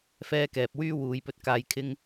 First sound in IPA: f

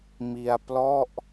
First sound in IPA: m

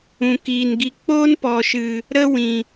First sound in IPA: ũ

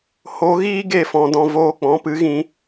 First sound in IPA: h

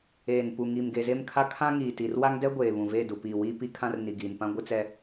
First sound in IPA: eː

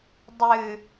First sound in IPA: dˤ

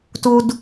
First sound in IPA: t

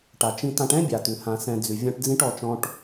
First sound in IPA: ʈ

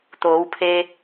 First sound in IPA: t̪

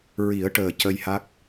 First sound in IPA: ɹ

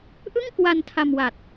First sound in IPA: ʔ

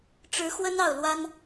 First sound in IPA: ʈ͡ʂ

